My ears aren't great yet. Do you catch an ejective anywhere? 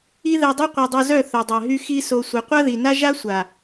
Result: no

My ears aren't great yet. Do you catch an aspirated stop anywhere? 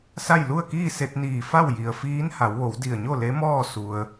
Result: no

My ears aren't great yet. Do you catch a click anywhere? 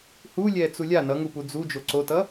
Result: yes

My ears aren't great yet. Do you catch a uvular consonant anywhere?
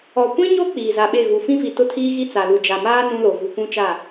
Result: no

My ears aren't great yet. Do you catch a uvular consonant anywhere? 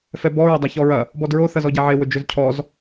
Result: no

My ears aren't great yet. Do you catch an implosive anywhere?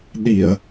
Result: yes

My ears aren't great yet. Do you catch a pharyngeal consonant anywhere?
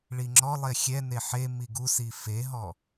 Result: yes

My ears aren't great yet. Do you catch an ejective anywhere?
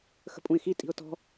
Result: yes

